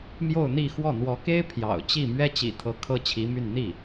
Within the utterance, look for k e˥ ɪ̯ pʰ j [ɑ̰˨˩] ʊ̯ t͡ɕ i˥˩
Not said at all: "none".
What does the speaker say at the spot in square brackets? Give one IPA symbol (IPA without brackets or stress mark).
ɑ̰˨˩